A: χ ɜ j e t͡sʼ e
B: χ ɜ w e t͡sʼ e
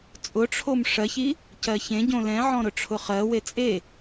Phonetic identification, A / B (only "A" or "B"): B